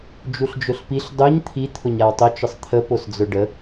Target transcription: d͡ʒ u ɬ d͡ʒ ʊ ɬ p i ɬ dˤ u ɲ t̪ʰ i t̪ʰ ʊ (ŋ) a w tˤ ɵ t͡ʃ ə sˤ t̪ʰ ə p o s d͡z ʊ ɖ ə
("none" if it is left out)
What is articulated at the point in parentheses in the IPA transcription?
ɲ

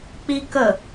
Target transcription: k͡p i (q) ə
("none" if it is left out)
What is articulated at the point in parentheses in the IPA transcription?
k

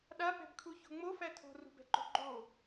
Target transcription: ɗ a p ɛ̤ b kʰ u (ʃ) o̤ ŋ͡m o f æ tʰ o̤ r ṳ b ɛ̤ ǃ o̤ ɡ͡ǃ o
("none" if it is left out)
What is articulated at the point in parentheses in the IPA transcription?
ç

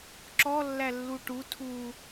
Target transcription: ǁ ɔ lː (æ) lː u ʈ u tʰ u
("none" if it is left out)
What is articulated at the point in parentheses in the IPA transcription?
æ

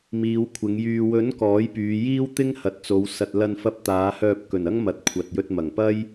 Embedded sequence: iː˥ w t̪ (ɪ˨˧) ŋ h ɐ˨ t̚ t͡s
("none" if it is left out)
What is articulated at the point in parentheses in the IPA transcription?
ɪ˥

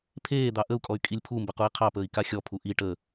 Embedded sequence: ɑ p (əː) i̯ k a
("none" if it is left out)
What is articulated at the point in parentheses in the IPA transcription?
əː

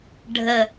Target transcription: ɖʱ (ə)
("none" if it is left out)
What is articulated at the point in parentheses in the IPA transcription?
ə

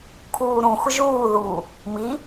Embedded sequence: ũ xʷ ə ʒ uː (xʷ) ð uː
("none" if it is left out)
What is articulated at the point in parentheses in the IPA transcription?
none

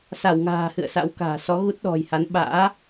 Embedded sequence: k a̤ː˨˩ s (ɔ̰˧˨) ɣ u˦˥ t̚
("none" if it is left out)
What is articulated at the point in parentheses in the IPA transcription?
ɔ˨˦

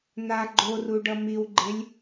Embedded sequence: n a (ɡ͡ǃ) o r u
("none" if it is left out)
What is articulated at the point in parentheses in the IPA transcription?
ɡ͡ǃ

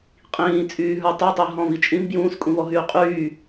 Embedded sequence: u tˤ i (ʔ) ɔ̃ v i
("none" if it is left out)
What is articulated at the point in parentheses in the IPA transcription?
ɦ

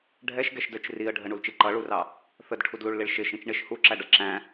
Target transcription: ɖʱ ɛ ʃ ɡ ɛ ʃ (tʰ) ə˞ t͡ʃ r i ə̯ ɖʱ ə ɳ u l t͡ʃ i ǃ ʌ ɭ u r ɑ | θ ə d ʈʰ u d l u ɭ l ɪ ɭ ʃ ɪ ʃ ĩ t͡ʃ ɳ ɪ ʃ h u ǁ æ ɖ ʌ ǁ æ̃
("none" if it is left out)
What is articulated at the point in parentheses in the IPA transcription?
d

